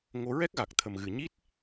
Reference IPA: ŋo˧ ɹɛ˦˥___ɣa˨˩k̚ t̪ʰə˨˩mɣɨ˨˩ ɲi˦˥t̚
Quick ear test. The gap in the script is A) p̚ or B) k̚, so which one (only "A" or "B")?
B